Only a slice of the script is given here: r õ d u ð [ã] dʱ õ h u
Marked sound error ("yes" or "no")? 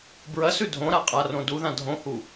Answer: no